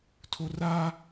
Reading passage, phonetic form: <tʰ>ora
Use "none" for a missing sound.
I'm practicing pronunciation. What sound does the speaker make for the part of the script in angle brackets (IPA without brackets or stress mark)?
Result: tʰ